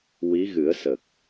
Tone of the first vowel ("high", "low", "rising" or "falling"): rising